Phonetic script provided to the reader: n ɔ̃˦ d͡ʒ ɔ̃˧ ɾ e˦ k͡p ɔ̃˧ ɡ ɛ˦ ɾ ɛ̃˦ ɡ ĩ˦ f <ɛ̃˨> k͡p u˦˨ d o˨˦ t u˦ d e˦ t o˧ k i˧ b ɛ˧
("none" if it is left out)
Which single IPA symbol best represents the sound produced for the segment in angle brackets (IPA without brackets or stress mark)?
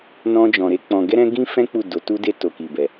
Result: ɛ̃˦